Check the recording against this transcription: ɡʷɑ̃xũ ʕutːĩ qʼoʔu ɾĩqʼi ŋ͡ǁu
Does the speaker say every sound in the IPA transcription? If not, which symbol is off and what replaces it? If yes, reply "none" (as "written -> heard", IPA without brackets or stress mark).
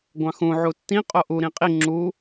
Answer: none